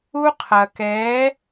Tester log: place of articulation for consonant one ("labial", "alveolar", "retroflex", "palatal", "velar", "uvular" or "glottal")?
uvular